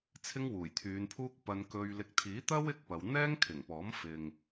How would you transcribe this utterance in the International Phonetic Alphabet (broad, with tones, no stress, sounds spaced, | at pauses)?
t͡sʰ ɪ˥ ŋ w uː˨˩ j t̪ʰ yː˨˧ n pʰ uː˥ k̚ p ɐ˧ n k ɵ˧ ɥ l ɪ˨ k̚ t̪ʰ iː˨˥ t̪ ɐ˥ w ɪ˥ k̚ p ɐ˨˧ w n̪ ɛː˥ ŋ kʰ ɪ˨˩ ŋ p ɔː˨˥ m f ɪ˨ ŋ